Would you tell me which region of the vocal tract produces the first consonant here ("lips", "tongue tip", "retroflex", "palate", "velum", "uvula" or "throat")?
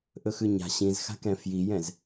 throat